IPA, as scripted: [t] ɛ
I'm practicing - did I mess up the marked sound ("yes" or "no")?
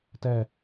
no